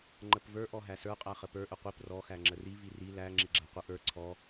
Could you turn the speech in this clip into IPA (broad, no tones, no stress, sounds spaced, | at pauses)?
ŋ͡ǃ ə p v ə˞ ʔ ɔ ɦ æ s ə˞ qʼ æ χ ə p ə˞ ʔ ə qʷ i p r ɔ x æ ŋ͡ǁ ə r i v i r i l æ ŋ͡ǁ i ɡ͡ǁ æ qʷ ə ʔ ə˞ ǀʰ ɔ